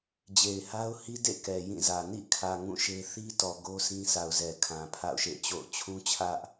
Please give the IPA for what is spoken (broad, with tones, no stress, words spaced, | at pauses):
d͡ʑe˨ɪ̯ha˦ʊ̯hi˦dḛ˦˨ kɛ˨jĩ˦˨zä˨ nḭ˦˨kʰä˨ ŋũ˦˨ʃe˦ θi˦tɔ˨ ɡo˦ sĩ˦sa˨ʊ̯zɛ˨ kʰã˨pʰa̰˦˨ʊ̯ʃḛ˦˨t͡ɕo̰˦˨ʊ̯ t͡ɕʰũ˦t͡ɕʰä˦ʔ